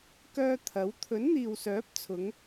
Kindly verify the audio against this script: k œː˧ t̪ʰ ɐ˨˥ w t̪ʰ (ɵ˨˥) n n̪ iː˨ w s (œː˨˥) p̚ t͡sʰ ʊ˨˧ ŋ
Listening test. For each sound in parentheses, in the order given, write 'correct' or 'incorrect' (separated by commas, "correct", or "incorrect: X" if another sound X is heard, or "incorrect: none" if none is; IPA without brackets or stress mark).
correct, correct